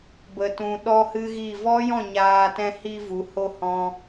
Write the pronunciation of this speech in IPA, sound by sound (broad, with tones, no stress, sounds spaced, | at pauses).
b ə˨ t ũ˧ ɗ ɔ˦ h ɨ˦ ɣ i˦˨ v ɔ˦ j ɔ̃˦˨ ɲ aː˧ t ɛ̃˧ h i˧ v u˨˦ h o˦ h ɔ̃˧